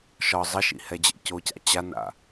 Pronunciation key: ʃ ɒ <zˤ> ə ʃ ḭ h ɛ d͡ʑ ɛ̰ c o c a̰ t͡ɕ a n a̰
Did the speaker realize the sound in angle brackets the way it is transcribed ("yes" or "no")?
yes